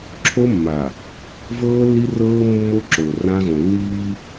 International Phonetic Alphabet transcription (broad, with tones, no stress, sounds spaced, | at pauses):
ǁʰ o˦ mː a˨ | v ɤː˦ lː i˦ r ɤː˦ mː o˦ ǁ o˨ r ã˦ ɣ õ˨ lː iː˦